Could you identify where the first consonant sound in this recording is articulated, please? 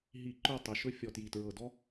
glottal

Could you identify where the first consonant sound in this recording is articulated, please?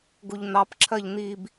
velar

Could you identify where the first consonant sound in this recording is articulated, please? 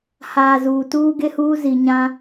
glottal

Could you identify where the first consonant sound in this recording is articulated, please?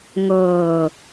velar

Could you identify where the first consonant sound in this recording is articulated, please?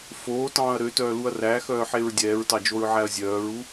labial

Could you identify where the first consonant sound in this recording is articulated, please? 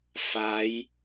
labial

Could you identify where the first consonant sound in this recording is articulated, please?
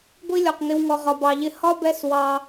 velar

